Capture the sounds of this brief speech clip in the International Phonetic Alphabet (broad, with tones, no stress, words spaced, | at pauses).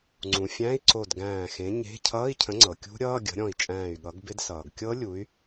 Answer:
ŋ͡ǀũ˩fʲæ̃˧˥˧i̯ǀo˧˩d ɡæ̃ː˧˩xẽ˨˥ɲe̤˧˥˧ cʰʌː˧˥˧i̯cʰə̃˨˥ŋ͡ǀɤ˩ kʲṳ˦˥ɾʲʌː˧˥˧ ɡʲə̤˨˥ɾʲɔ̃˧˩i̯ t͡ʃʼæ̃ː˧˩y̯ɠʌ˨˥ɡbɪ˦˥d sʌː˩ɡkʲɤ˦˥ lʲu˨˥y̯